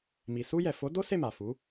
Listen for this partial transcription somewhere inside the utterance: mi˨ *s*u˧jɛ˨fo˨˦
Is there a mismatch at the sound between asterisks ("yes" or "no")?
no